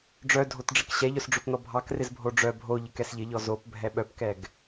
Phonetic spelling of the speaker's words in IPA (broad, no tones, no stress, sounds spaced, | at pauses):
ɖ͡ʐ œ dʱ o t ɖ͡ʐ ɪ k ɕ ɛ ʎ œ s ɖ͡ʐ o p n ɔ bʱ ɑ k r ɪ z bʱ o ɖ͡ʐ œ bʱ o ʎ ɪ k ɛ s ʎ ɪ ʎ ɔ z o p bʱ ɛ ɓ œ p k ɛ ɡ